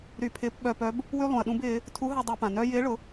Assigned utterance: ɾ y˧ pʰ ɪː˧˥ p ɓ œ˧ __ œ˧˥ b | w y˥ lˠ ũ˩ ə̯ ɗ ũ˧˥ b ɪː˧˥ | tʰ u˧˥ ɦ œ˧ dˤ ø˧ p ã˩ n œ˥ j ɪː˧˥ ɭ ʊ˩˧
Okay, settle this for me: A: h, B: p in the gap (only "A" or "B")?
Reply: B